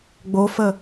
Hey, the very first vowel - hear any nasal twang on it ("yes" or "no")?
no